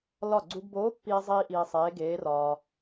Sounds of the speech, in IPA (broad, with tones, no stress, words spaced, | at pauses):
lɒ˧˩ɡ͡ǀu˧ɡboː˧˥pːiː˧ zˤiː˧ ʔiː˧sˤeː˧˥ ɡeː˧˥rɒː˧